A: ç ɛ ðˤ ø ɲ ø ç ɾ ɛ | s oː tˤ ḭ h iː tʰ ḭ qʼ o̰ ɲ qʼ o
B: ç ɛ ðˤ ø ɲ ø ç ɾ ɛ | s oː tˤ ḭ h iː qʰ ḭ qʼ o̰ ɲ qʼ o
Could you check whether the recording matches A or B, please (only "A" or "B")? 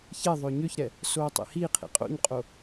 B